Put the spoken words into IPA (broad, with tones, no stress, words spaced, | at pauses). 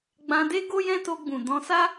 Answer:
ɡ͡bã˧de˦ ɡo˦jɛ̃˦to˧ ɡ͡bũ˨ dɔ̃˧sa˦